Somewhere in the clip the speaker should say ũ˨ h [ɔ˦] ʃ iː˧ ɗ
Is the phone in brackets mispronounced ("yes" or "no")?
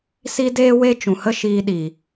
yes